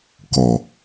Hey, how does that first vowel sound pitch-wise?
low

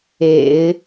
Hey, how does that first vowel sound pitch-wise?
low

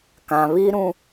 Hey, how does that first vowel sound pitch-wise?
low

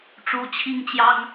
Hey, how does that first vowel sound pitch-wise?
rising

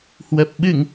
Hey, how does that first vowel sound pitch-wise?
low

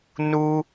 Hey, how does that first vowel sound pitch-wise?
high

